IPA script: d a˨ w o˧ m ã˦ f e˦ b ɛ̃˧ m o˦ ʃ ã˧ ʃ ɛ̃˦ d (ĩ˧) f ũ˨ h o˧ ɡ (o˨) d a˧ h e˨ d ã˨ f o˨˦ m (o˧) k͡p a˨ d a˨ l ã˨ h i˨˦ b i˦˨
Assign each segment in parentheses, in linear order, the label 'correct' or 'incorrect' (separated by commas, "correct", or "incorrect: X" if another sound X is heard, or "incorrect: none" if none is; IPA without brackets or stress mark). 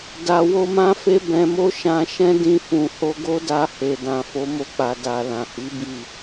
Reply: correct, incorrect: o˦, correct